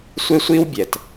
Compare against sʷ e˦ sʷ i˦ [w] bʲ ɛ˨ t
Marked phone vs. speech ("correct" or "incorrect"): correct